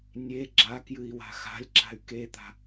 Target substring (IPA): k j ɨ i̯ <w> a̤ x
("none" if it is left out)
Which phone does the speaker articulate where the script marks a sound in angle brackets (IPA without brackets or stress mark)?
w